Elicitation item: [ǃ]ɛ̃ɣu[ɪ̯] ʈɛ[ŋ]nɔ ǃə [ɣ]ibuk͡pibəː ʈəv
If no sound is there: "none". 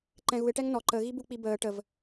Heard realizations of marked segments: ǃ, ɪ̯, ŋ, ɣ

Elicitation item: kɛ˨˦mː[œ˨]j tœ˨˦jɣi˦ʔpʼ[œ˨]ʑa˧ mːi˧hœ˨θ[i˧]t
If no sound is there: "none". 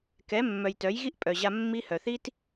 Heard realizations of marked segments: œ˨, œ˨, i˦

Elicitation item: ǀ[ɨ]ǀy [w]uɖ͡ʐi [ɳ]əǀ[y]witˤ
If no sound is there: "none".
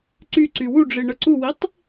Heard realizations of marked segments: y, w, ɳ, u

